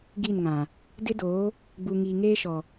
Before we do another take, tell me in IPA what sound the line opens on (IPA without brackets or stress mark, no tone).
ɡ